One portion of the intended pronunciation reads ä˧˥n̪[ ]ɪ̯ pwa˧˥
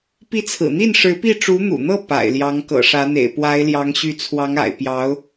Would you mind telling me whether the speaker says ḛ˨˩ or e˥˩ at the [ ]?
ḛ˨˩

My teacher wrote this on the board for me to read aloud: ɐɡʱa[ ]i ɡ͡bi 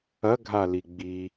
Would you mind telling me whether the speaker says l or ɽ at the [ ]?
l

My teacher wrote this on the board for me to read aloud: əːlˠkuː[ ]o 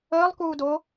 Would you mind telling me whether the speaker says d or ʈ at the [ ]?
d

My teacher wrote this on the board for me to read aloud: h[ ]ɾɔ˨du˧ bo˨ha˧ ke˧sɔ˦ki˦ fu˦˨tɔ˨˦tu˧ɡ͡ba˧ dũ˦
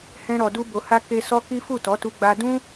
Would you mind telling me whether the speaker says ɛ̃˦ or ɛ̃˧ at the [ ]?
ɛ̃˧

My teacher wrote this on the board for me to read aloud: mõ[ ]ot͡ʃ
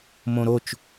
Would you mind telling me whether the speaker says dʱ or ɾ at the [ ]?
ɾ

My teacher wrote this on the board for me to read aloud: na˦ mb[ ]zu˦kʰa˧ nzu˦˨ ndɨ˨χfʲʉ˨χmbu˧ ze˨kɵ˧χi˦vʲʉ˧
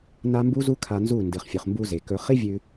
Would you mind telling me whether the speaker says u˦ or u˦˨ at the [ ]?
u˦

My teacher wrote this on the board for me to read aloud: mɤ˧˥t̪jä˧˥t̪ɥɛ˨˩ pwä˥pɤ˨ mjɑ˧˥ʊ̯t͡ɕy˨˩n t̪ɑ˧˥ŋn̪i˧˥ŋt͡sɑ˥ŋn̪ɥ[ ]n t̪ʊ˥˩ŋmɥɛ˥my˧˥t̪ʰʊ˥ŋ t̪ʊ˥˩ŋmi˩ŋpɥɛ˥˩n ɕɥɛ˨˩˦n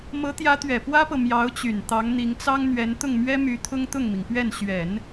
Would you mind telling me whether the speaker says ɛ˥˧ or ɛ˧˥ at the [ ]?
ɛ˧˥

